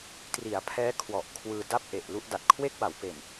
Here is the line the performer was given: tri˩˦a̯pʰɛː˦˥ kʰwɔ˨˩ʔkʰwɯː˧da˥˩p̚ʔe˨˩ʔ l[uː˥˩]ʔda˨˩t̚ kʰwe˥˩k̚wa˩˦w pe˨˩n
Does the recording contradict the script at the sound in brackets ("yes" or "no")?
yes